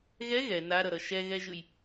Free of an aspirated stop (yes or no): yes